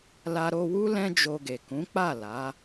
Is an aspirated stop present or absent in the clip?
absent